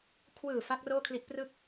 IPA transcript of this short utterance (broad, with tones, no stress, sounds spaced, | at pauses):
kʰ w ɯː˨˩ f a˦˥ k̚ r oː˥˩ kʰ l i˦˥ ʔ p r ɯ˥˩ k̚